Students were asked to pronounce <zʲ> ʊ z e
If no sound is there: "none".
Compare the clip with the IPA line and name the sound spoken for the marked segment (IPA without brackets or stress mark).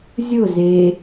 zʲ